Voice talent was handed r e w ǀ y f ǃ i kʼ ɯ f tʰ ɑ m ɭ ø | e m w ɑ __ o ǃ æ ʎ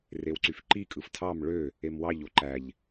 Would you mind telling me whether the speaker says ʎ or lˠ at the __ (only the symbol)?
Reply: ʎ